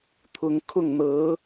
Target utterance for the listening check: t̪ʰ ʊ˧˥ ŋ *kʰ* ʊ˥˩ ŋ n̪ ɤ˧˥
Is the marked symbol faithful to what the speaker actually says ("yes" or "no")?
yes